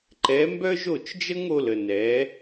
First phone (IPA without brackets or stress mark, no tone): ǃ